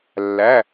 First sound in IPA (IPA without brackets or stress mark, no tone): lː